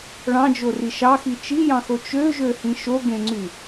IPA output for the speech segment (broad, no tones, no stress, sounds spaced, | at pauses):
ɭ ɑ̃ d͡ʒ o r i ʃ ɑ x i t͡ʃ i j ɑ̃ x o t͡ʃ ø ʒ ø h ĩ ʃ o ɡ ẽ ŋ͡ǀ y